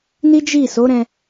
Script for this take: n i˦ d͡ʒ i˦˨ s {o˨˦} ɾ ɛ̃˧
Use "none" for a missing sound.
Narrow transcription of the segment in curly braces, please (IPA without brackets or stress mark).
o˨˦